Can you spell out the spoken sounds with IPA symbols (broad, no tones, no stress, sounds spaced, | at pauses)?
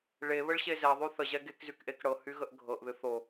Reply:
ɭ e β ə ɭ ɕ e z ɛ ðˤ y θ ə ʑ ɛ ɡ e k z y k ʔ e k ɽ ɤ h y ɣ ə ʔ ɡʱ ɤ ʔ ð ɨ θ o